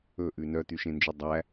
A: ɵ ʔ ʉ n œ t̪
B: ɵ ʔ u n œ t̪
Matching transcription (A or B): A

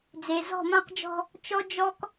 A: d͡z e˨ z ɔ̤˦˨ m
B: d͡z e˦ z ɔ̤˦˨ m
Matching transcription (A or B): A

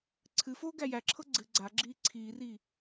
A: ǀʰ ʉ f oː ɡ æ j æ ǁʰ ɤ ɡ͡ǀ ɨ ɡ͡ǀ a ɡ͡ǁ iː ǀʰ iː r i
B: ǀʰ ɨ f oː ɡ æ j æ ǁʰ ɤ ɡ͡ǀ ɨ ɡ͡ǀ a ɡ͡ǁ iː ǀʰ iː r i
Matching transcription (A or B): B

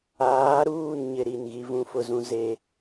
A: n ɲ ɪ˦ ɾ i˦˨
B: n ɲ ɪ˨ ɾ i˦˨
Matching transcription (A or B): A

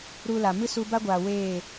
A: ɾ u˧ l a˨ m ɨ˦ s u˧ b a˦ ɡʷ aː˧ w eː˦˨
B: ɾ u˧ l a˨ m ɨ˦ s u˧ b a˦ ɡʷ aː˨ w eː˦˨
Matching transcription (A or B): B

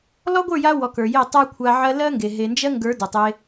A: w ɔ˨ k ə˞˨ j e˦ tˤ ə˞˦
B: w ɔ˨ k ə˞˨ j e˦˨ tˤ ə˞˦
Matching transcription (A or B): B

